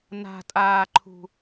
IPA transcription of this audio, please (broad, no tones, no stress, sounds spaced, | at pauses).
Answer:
n a̤ tʼ aː ǃʰ ṳ